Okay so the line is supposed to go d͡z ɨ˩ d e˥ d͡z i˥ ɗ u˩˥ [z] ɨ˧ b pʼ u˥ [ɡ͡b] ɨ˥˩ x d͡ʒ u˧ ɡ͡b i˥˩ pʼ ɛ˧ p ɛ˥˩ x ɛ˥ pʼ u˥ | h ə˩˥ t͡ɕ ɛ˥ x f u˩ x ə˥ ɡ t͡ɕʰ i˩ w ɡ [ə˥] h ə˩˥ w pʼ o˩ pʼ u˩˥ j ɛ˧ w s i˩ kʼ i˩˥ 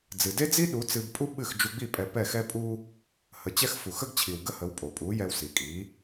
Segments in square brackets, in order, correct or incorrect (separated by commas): incorrect, incorrect, correct